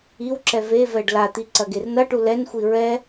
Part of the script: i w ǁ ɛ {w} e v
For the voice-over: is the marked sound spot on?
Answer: no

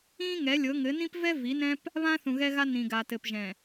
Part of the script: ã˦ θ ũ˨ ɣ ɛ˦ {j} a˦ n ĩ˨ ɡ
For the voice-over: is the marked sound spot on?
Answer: no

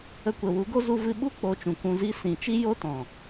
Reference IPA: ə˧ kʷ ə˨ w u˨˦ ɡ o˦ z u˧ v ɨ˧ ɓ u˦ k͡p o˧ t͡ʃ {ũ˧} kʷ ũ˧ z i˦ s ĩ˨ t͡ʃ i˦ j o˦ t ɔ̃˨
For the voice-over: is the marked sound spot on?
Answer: no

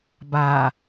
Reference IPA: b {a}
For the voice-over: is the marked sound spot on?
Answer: yes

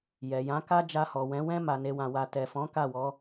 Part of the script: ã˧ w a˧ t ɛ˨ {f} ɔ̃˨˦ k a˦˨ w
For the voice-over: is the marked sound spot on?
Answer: yes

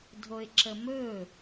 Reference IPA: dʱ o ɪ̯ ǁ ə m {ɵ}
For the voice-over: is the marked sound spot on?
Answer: yes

